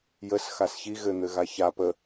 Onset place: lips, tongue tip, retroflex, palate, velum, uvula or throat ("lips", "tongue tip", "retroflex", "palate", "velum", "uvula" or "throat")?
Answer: palate